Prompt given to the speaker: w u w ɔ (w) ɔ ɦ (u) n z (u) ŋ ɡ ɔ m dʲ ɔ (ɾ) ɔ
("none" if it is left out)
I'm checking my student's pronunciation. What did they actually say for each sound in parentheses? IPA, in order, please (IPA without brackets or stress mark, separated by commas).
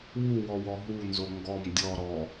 w, u, o, ɾ